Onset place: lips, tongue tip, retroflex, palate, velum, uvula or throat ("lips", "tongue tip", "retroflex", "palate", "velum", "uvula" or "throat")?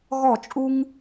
velum